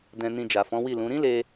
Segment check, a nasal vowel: present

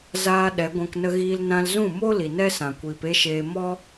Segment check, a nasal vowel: present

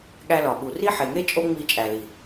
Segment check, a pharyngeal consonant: present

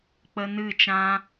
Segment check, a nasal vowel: present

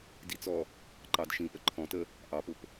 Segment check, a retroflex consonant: absent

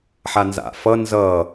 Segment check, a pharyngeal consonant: present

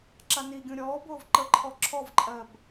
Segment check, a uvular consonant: absent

